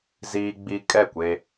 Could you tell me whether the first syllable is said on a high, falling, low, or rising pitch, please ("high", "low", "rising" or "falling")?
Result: high